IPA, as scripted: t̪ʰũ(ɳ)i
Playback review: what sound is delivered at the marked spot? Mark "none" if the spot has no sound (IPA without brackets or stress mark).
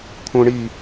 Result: ɳ